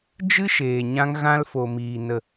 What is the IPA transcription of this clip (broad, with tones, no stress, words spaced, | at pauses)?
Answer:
d͡ʒɨ˦ʃeː˨ ɲã˧ŋɣã˧lfo˨miː˨ nə˨